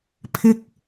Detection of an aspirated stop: present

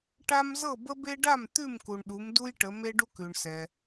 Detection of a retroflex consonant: present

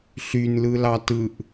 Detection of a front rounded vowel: present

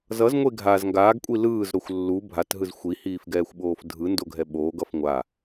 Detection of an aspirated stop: absent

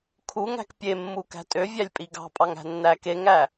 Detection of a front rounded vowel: present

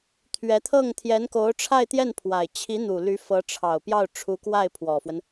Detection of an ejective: absent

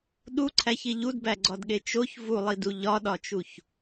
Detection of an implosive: present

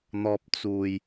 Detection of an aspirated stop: absent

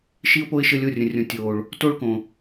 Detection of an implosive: absent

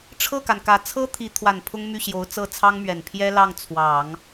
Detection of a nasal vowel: absent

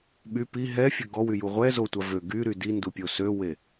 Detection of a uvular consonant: present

